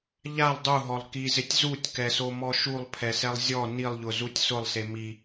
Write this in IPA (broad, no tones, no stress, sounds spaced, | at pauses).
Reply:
ʎ a lˠ dˤ u ɦ ɔ lˠ k i z ɪ tʲ z u tʲ k ɛ s o m ɔ ʃ u lˠ pʰ ɛ s ɛ lˠ zʲ ɔ n i lˠ ʎ ʊ z u tʲ s ʊ lˠ s e m i